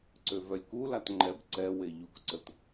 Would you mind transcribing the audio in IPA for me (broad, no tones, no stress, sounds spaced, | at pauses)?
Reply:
ǀ ø v œ lʲ k u l a t ŋ͡ǃ ɛ b ǀ ɛ w e ʎ u k ǀ ə t